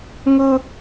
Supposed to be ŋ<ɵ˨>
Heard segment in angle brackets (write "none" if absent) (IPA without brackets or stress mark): ɵ˦